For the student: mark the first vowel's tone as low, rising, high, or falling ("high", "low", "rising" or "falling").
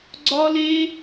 high